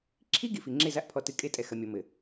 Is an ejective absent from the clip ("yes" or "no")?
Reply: no